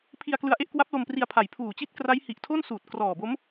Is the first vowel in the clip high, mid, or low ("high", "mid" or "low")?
high